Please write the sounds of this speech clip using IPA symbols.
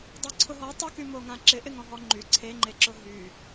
dˤ o ǀʰ ʊ ɦ ɔ tˤ ʏ k y m o ŋ ã ǁ ɪ ʔ ɪ ŋ ɔ̃ ɦ ɔ ŋ͡ǃ y ǀʰ e ŋ͡ǃ e ǁ ʊ ɦ y

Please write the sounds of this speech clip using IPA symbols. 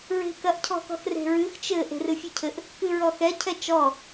ɹ e̤ k ɐ ʔ cʰ ɔ̤ k ɔ̤ x r e̤ ɹ ɨ x t͡ʃ ɘ ʔ e̤ r ɨ fʲ ɨ cʰ ɘ ʔ | k ɨ ɹ ɔ x ɛ cʰ ɛ t͡ʃ ɔ

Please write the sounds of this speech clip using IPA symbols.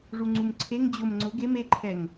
ʐ u ŋ͡ǀ u m ǀʰ e ŋ d͡ʑ ʊ m ŋ͡ǀ ʊ ɡ e m e ǃʰ ɛ ŋ

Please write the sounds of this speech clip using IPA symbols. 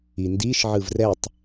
i n d i ʃ ʕ ɯ v r ɛ tˤ

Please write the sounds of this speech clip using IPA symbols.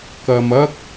k ɐ˧ m ɐ˥ k̚

